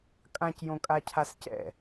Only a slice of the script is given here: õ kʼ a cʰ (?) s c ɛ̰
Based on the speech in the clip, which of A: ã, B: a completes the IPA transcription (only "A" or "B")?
B